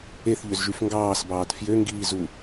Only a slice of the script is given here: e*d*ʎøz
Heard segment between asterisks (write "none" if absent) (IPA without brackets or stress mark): θ